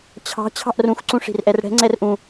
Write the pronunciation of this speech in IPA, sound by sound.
t͡ɕʰɑ̤ t͡ɕʰɑ̤ʔrũx ǀũʂi̤rʔɛrɽɛ̤ ŋ͡ǀɛrʔũ

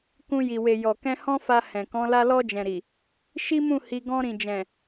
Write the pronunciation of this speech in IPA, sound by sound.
kũ˧ ji˨we˨ jɔ˨kɛ̃˧ hɔ̃˦fa˧ hɛ̃˨kɔ̃˨˦ la˧lɔ˧d͡ʒɛ̃˨ɾi˨ | ʃi˦mũ˦˨ hi˧ ɡɔ̃˧ɾĩ˨d͡ʒɛ̃˨

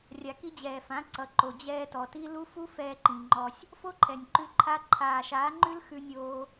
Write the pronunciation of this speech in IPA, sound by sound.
rʲa˨ki˧d͡ʑɛː˨fã˨˦ ǀʌ˨ǃo˨ d͡ʑɛː˧tɔ˨ti˦ lu˦fu˦ fɛː˧ǃĩ˨ŋ͡ǃɔ˧sʲ | fo˦ǃʰɛ˨nʲǃʉ˧ǃʰa˧ ǃʰaː˨ʃaː˨˦ ŋ͡ǃʉ˦lxʉ˧nʲoː˧

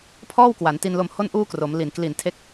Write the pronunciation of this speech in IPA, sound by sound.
pʰɔː˥˩wkwa˩˦nti˧nlo˧m ho˥˩nʔuː˥˩kro˩˦m li˨˩n kli˨˩ntʰe˦˥k̚

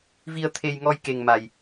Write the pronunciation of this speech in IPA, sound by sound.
vi˧ə̯t̪ʰe˧jŋɔ˧j ke˧ŋma˧j

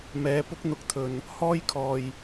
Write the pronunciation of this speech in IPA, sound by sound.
mɛː˨˧ pʊ˥k̚n̪ʊ˧k̚t̪ʰɵ˨n | hɔː˥jkʰɔː˨j

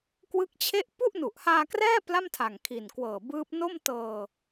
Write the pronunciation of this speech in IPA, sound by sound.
kwɯ˦˥k̚t͡ɕʰe˥˩ʔ pu˥˩ʔnu˨˩ʔhaː˧krɛː˥˩ pla˥˩mtʰa˨˩ŋkʰi˨˩nkwɤː˨˩ bɯː˦˥p̚ no˥˩m tɤː˧

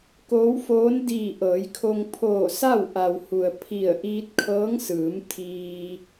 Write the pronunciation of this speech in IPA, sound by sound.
koː˧˥wfoː˧˥n diː˧˩ ʔɤː˩˧jkʰo˧ŋ pʰoː˧˩sa˥˨w ʔa˩whu˩ə̯ pʰi˧˩ə̯ ʔiː˧t̚kʰɤː˧˥ŋsɯː˩˧m t̪ʰiː˧

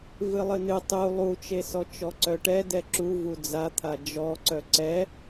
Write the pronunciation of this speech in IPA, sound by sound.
vɨlˠɨnɨ tˤu lˠut͡ʃesɔ t͡ʃɔǀœʈɛ dɛǁu vud͡zat̪ʰa d͡ʒɔ ǀœǀɛ

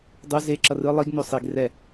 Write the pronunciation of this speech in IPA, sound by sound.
dˤu ze ǁʌrɯ lˠiɡno sˤiɡ rɛ

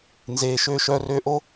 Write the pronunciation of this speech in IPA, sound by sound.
nzeː˩ʃøː˧ ʃœː˧røː˧ʔo˥

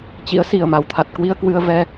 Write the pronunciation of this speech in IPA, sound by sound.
t͡ɕḭ˧˥ə̯ si˨˩ə̯ma˨˩wt̪ʰa˨˩t̚kwi˧ə̯ kwɨ˧ə̯vɛ˧

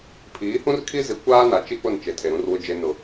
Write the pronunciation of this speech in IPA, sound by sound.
pʰiː˨˦hũ˦rkʰi˦zi˨˦ kʷaː˦na˨t͡ʃi˦ k͡pʊ˦˨nt͡ʃe˨tʰe˨ ɾũ˦rwʊ˦d͡ʒe˦ nʊ˦

